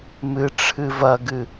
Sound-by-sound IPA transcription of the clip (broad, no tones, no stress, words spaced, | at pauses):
mɨ ʈ͡ʂʰɨvɐɡɨ